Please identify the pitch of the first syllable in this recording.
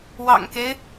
low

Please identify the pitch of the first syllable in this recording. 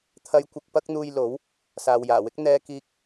high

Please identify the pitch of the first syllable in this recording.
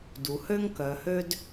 low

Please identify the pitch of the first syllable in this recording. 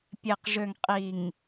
low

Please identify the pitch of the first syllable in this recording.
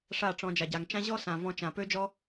falling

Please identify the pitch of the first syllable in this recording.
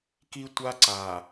high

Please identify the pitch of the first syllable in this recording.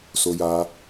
high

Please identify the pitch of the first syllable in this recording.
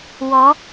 rising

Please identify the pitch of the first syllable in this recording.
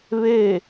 falling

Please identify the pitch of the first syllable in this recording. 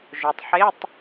low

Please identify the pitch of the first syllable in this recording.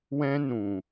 high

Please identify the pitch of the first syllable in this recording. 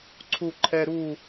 falling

